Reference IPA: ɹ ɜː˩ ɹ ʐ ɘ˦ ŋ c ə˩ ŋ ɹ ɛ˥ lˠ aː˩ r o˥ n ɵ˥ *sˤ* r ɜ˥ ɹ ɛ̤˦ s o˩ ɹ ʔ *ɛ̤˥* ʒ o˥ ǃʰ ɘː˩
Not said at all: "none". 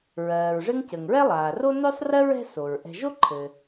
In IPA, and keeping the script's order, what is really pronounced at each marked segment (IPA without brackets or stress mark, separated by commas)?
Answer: sˤ, ɛ̤˨